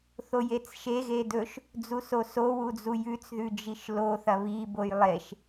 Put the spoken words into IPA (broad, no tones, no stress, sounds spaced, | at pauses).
θ o j e t͡s ʃ e ɣ e d ɵ ʃ | d͡z u s o s o w u d͡z u j ʉ t͡s ð ʉ d͡ʒ i ʃ l o θ ɐ β i b o j lˠ e ʃ